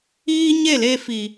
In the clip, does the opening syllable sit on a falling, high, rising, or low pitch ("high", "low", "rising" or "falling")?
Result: high